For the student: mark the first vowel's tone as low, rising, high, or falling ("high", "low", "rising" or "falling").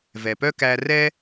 low